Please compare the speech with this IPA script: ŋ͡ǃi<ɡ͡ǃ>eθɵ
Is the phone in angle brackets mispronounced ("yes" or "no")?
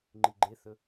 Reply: no